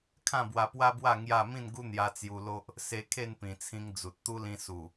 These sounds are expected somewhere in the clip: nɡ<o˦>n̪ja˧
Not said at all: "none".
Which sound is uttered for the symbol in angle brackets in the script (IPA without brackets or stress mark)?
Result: u˦